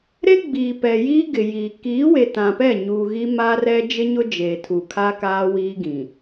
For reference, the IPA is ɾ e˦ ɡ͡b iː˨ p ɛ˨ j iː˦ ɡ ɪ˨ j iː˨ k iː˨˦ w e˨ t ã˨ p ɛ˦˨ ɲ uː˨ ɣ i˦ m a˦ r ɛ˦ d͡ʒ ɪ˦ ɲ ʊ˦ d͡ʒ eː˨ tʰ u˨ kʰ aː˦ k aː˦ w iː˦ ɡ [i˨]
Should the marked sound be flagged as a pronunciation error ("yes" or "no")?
yes